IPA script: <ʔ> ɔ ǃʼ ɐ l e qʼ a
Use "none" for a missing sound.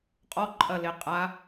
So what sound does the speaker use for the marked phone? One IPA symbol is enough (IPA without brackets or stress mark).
qʼ